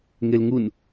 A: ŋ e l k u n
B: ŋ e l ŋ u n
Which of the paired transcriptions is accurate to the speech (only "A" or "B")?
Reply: B